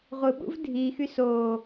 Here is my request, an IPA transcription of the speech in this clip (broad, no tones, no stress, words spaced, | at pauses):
ʁʷɯɓṵv dʱiːx ysoː